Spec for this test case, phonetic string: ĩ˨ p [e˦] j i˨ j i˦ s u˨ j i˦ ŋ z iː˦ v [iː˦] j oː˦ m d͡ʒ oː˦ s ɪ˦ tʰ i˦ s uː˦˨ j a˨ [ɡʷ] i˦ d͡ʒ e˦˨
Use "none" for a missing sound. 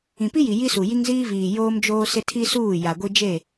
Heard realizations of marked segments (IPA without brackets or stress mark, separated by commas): i˦, iː˨, ɡʷ